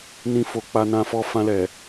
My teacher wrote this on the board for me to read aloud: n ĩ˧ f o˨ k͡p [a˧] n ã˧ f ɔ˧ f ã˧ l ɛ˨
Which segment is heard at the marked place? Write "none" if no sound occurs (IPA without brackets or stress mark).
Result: a˧